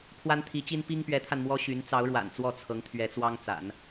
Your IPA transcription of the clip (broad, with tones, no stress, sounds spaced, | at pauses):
pʰ w a˥ n t̪ʰ i˧˥ t͡ɕ i˥ n p i˥ ŋ p ɥ ɛ˧˥ t̪ʰ a˧ n m w ɔ˥ ɕ y˧˥ n t͡s ɑ˧˥ ʊ̯ ɻ w a̰˨˩ n t͡s w ɔ˥˩ t͡sʰ ɤ˧˥ ŋ t̪ʰ ɥ ɛ˧˥ t͡s w ɑ˥ ŋ t͡s a̰˨˩˦ n